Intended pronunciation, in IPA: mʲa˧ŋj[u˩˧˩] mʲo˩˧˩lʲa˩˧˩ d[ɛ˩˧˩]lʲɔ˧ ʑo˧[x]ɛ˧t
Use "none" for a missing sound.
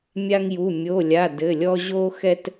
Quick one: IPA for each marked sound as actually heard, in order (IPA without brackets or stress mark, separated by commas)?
u˩˧˩, ɘ˩˧˩, x